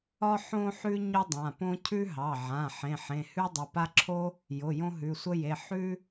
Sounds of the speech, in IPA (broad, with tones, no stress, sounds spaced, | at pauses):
ɒ˥ ħ õ˥ ħ ʉ˥ ɲ ʊ˥ dˤ ã˩˧˩ p õ˥ cʰ ʉ˥ ɦ ɑ˩˧˩ ʕ ã˩˧˩ ħ ẽ˩˧˩ ħ ẽ˩˧˩ h ʉ˥ dˤ ə˩˧˩ p a˥ ǁʰ o˥ | j ʊ˩˧˩ j õ˥ ɦ ʉ˩˧˩ sʷ ə˥ j e˩˧˩ ħ ʉ˥